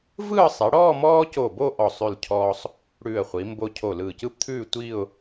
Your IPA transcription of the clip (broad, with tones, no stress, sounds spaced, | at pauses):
v ɯː˥˧ sˤ i˩˧ ɽ ɔː˥˧ m ɔː˥ c o˧˩ b o˥˧ ʔ ɔ˧˩ sˤ ʉ˧˩ l cʰ ɔː˧ sˤ | ɽ ʉː˧˩ ə̯ χʷ i˩˧ m b o˧ cʰ o˧˩ l ɯː˧˩ c ɯ˥ p t̪ʰ ʉː˥˧ tʷ iː˥˧ ʊ̯